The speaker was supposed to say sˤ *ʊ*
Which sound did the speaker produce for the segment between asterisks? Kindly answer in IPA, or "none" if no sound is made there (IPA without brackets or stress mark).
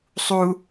u